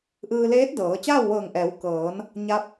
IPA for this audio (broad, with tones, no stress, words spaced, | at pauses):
ʔɯː˧leː˧˥t̚ dɤː˩˧ t͡ɕaː˥˨wʋɤː˧˩ŋʔɛː˩˧wkɤː˩˧n | ɲa˧˥p̚